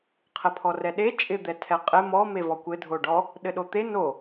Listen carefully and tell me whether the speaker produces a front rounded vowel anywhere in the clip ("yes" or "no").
no